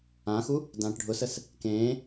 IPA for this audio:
ãxu | dãːʈɖʱʊsəs | kẽː

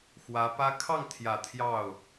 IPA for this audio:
xwä˧˥pä˥ kʰɑ˥˩ŋt̪ʰjä˨˩ t̪ʰjɑ˥˩ʊ̯

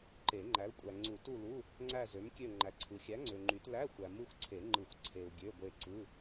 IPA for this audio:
ǃe˨˩˦ŋ͡ǃæ˨˥l kʷʼæ˨ŋ͡ǀu˨˩˦tu˦˨lu˧˥˧ | ŋ͡ǀæ˦˨zø˨˥mkʲø˦˨ ŋ͡ǃæ˨ǀʰɯ˨xʲæ˨˥ŋ͡ǀø˨ ŋ͡ǃy˨˩˦tlæ˧˥˧xʷæ˨ mɯ˦˨xʷǀʰe˨˩˦ ŋ͡ǃɯ˨˩˦xʷǀʰe˨u̯ ɡʲø˧˥˧ɡʷe˦˨ ǀɯ˧˥˧

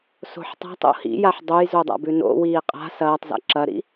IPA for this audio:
so̤ħtˤa̤tˤo̰ hḭjaħ dˤojzodˤa̰ bʉno̰wiː qʼa̤ sɐːtˤza̰ ǁɐɾḭ

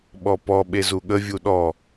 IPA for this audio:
ɓɔpɔ ɓezuɠə vʲuɗɔ

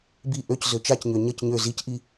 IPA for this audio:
bi ʔøc zøt͡ʃacɲø ɲəc ɲø zicʔi

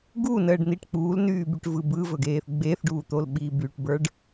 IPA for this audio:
ɡunəːɖn̪iʈ k͡puːlnyːbyʈvɯ bɯvɵɡeːθ ɡ͡beːθɖuːt̪olɓiː byʈbə˞ɖ

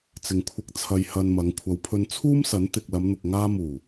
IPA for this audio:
t͡sɪ˨ŋkʷʰɪ˧k̚t͡sʰɐ˧j hɐ˧nmɐ˨˧ŋ kʷʰɐ˨˧wpʰɵ˧n t͡sʰuː˥msɐ˨˥n t̪ɪ˨k̚lɐ˨˧m n̪ʊ˨k̚ŋaː˧muː˨˩

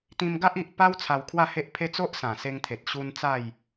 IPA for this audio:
t̪ĩ˧mɡa˦ʔ i˨ʔpa˦w t͡sʰa˧wkʰwa˥˧he˦ʔpʰe˦ t͡so˦ʔsã˨˩se˧ŋt̪ʰe˨t̚ ɕu˧n t͡sa˥˧j

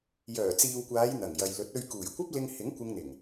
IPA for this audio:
jœː˨˩t͡siː˨wkʷaː˨˧j n̪ɐ˨˩ŋjɐ˨j lɵ˨˥t̚ɵ˧ɥ kuː˨˩jkʷɐ˥p̚ lɪ˧ŋhɪ˨˥ŋ kʷɪ˧ŋn̪ɪ˨˩ŋ

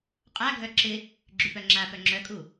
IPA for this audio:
qʼaɡʱœ ǁɪ | ɡ͡ǁypœŋ͡ǁapœ ŋ͡ǁœkʼu

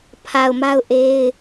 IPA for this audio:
pʰa˨ʊ̯ma˦ʊ̯ ʔe˦ɪ̯

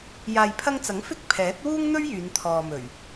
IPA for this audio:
jaː˨jpʰɐ˧ŋt͡sɐ˨˥ŋ fɪ˥k̚ pʰɛː˨˥t̚ wuː˥ŋn̪ɵ˥ɥ jyː˨˧nt̪ʰɔː˨mɵ˨˩ɥ

